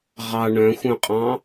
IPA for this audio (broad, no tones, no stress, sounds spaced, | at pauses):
ʁ ɑ ɳ œ̃ xʷ œ̃ qʼ ɑ̃